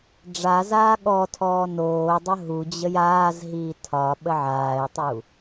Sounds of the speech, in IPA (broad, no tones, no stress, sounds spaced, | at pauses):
ɖ͡ʐ a z aː ɠ ɔ tʰ ɔː n oː dˤ ə ɦ u d͡ʑ ə j aː z ɦ iː tʰ ɒ ɓ ə ʕ aː ɪ̯ tˤ u